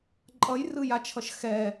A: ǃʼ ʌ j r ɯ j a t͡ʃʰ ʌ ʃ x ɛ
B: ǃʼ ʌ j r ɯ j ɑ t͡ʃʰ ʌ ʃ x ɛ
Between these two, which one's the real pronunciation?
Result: A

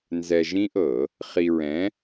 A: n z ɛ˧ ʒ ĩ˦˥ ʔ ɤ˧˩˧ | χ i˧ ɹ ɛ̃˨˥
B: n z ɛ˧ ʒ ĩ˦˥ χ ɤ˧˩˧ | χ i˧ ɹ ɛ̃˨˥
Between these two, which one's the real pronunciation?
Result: A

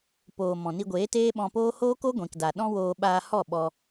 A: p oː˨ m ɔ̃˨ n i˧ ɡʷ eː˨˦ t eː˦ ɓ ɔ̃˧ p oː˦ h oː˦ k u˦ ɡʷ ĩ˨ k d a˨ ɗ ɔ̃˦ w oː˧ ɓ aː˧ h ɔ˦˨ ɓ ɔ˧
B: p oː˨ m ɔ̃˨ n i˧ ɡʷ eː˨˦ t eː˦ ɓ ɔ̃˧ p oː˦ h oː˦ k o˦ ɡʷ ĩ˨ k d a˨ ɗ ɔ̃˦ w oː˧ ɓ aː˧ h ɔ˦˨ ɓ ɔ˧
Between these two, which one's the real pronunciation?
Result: B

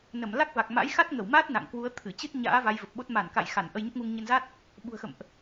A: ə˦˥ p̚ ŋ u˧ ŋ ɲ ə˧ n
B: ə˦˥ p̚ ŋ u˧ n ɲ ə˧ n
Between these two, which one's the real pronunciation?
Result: A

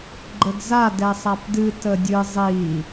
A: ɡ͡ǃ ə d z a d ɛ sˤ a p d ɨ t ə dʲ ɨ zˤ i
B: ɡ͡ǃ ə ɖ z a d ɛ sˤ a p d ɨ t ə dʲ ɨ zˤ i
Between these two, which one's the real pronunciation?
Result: A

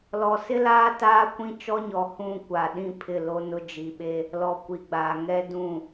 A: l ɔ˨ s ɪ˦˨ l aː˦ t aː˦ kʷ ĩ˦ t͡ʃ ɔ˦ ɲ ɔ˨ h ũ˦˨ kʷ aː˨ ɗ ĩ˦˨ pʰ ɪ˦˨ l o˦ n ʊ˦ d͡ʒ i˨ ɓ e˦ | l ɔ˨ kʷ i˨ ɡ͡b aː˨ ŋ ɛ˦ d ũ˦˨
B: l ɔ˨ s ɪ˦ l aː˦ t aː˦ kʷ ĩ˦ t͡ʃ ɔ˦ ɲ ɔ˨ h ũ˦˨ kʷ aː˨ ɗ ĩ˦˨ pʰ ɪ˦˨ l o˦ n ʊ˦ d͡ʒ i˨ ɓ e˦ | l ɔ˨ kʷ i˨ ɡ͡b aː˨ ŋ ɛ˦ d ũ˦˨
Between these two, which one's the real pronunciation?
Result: B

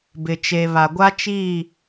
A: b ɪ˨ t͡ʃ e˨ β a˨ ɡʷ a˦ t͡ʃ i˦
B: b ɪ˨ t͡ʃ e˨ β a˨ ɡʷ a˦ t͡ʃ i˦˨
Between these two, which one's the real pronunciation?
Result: B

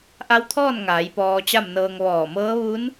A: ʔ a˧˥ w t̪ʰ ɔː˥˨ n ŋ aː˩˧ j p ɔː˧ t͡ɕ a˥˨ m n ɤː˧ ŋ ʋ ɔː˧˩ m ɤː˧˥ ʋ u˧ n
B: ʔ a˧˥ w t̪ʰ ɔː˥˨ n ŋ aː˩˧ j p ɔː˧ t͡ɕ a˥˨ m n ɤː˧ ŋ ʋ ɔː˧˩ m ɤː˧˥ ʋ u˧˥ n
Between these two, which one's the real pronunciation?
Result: B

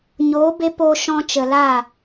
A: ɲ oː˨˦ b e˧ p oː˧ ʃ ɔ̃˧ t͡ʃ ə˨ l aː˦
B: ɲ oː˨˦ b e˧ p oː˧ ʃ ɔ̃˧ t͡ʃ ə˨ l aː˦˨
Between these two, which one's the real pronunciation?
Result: B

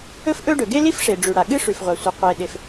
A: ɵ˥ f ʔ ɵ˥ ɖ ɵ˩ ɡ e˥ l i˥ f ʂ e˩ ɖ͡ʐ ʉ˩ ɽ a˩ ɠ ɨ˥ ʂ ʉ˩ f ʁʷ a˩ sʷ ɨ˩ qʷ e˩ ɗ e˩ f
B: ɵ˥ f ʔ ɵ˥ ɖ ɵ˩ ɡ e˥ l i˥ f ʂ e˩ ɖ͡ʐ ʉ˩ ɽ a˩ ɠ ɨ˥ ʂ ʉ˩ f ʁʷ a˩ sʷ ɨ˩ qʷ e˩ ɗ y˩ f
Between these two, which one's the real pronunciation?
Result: A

